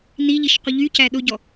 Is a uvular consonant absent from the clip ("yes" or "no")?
no